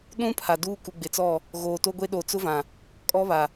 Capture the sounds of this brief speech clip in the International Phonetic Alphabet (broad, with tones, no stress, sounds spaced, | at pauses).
ɗ ũ˦ pʰ a˨ d uː˦ k u˨ ɡ͡b ɪ˨ t͡s ɔ˦˨ | ɣ oː˨ t o˦ ɡʷ e˦ ɗ o˨ t͡s ʊ˦ v ã˨ | kʼ ɔ˦ β a˨